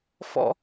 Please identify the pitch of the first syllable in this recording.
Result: high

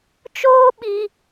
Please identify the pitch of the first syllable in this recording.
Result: high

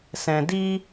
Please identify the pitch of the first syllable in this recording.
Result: low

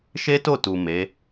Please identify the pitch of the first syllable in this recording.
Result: high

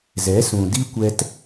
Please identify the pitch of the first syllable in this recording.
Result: rising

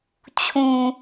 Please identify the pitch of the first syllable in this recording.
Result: low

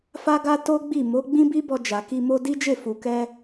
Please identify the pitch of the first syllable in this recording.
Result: high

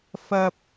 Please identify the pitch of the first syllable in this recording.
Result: high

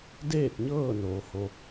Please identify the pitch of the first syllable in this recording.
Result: falling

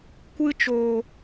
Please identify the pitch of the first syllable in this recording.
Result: high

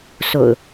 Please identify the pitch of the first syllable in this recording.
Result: low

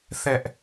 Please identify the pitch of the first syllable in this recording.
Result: high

